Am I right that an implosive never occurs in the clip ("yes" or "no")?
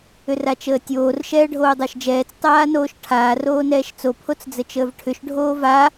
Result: yes